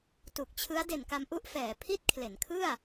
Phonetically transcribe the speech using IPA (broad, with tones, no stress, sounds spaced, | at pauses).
t u˨˩ k̚ t͡ɕʰ ɯ˦˥ a̯ d e˨˩ n k a˧ m ʔ u˥˩ ʔ f ɛː˩˦ pʰ i˥˩ t̚ kʰ l e˩˦ n kʰ ɯ˥˩ a̯